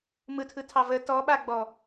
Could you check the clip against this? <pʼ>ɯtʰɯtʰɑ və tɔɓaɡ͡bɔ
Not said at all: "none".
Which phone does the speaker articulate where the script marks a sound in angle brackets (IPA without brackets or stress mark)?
m